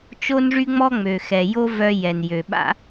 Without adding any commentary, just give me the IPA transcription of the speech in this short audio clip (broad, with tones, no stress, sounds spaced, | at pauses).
t͡ʃ o˦ n ʐ y˦ ŋ͡m ɔ˦ ŋ͡m ø˨ x ɛ˨ j o˦ v œ˧ j ɛ˨ n j ø˨ ɓ a̰˦